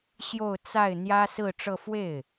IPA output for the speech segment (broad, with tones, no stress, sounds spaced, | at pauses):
ɕ j o˥˧ ʊ̯ t͡s a˥˩ ɪ̯ n̪ j ä˥ s ɹ̩˥˧ ʈ͡ʂ ɤ˥˧ f w e˥˩ ɪ̯